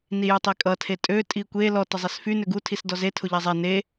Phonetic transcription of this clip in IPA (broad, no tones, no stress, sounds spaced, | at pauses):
n i j y tˤ i kʼ ʌ tʰ e tʼ ø tʼ i kʷ e l ɔ t ə zˤ e s f y n ø ɡ u tʰ i s d ɔ z e tʰ ʊ ʎ ɛ zˤ ɛ n e